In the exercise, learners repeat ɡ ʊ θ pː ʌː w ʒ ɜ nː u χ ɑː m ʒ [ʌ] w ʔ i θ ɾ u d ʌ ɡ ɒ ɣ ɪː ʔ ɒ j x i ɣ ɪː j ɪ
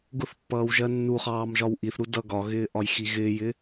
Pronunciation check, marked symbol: incorrect: ɒ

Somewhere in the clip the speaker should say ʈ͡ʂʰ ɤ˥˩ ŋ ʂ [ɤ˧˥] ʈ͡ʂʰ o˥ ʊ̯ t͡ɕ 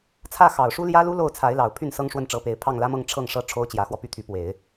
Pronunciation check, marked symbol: incorrect: ɤ˥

